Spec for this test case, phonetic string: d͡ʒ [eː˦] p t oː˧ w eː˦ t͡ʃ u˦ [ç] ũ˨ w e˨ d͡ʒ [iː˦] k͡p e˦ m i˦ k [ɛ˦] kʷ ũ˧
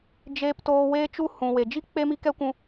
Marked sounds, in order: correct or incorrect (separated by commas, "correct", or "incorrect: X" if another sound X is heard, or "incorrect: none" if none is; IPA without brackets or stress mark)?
incorrect: eː˧, incorrect: h, incorrect: i˦, correct